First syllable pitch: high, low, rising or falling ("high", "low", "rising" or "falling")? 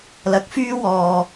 rising